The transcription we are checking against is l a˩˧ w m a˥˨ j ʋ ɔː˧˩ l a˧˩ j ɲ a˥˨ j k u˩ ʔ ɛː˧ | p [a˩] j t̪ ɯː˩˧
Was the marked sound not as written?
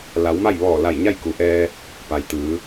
no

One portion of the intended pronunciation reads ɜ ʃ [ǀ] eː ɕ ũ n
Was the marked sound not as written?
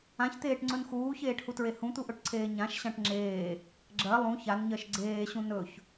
yes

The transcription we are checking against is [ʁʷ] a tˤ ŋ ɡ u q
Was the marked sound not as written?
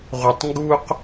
no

